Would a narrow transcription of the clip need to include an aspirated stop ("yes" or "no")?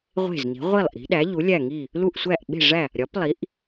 no